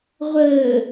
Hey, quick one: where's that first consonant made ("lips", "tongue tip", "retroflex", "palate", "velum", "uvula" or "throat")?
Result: uvula